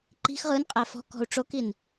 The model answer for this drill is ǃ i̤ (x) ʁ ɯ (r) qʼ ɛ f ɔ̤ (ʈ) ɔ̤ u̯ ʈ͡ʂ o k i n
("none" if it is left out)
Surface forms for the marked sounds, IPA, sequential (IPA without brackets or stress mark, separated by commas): x, n, k